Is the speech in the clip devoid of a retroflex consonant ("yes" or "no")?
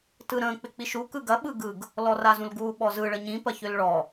no